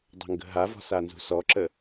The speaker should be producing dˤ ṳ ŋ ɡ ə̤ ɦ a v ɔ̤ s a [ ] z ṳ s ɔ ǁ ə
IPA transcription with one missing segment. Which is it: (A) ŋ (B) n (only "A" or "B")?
B